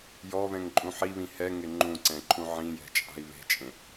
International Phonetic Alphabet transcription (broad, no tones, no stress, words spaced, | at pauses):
jɔβɛ̃ŋǃʼũ ħiβĩ hɛŋɪ ŋ͡ǃũǀɛ̃ǃʰũ ʕĩjɛ̤t͡ʃʼa̤i̯ βe̤t͡ʃʼẽ